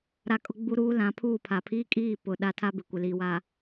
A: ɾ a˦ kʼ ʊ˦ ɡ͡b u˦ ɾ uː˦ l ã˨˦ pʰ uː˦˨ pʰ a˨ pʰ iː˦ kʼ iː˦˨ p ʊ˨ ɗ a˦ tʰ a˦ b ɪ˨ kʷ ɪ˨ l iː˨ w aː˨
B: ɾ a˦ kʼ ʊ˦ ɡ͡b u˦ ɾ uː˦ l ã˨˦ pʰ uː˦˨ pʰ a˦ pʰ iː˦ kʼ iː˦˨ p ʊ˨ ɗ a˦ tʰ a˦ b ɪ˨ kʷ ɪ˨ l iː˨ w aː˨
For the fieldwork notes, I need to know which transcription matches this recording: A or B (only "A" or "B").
A